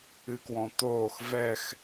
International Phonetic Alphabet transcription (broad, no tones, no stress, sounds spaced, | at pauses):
ɨ k w ɔ̃ t̪ oː x v ɛ x